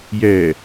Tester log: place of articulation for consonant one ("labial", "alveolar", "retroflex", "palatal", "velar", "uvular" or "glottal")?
palatal